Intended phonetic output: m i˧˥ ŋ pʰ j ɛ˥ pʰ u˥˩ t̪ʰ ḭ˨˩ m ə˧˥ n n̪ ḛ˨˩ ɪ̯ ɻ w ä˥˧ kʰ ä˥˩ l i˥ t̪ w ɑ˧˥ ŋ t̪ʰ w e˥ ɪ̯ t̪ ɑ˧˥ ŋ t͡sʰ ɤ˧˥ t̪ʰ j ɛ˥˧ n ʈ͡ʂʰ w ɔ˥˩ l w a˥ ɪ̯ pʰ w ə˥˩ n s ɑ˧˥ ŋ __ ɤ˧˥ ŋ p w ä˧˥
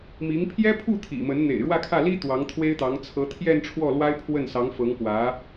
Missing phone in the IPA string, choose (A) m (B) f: B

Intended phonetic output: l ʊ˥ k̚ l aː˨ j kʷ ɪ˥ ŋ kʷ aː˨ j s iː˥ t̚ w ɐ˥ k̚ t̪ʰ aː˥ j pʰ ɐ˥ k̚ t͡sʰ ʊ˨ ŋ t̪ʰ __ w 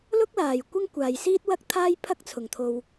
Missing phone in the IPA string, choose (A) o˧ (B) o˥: A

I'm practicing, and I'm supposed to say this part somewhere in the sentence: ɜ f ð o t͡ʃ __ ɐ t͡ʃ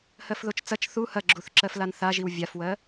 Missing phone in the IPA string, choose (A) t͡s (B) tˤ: A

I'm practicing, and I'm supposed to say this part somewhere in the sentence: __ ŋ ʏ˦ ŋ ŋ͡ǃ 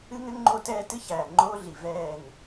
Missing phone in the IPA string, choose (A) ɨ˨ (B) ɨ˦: B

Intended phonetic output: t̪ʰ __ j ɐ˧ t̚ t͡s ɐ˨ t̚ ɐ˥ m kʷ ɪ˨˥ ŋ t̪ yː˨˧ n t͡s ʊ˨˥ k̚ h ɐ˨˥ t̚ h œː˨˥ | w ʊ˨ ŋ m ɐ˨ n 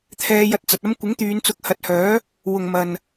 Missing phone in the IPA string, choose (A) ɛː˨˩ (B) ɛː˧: B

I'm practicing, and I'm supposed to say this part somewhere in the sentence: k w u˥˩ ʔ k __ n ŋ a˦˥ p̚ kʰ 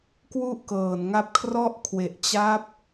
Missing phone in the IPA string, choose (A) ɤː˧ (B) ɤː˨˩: B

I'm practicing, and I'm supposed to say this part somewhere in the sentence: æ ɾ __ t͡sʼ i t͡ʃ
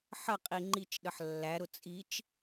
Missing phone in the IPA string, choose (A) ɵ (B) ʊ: B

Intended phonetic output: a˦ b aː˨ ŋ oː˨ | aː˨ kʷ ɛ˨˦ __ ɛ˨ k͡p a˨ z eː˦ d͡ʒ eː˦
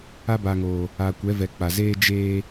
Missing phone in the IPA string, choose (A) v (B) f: A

